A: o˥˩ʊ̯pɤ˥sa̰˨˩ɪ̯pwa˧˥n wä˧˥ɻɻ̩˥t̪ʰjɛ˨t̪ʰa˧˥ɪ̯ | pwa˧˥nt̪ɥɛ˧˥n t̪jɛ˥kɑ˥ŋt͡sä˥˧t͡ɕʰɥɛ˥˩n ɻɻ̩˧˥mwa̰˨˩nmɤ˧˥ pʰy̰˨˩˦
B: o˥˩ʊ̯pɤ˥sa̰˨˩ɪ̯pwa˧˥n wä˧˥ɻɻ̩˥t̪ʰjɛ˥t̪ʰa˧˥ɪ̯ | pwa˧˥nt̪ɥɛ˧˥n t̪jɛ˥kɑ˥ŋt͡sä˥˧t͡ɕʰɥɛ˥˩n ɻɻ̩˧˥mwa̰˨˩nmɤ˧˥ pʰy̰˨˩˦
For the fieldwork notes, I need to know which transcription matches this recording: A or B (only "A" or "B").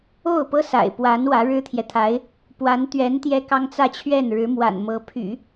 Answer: A